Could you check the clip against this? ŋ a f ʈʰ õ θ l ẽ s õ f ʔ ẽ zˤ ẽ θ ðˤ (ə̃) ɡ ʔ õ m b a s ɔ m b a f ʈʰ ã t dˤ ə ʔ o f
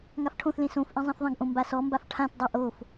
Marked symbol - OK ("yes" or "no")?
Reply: yes